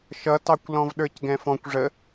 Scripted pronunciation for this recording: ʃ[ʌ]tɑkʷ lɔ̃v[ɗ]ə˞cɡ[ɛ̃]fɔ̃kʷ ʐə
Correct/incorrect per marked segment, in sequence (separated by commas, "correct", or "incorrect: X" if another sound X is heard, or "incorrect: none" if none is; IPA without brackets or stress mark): correct, correct, correct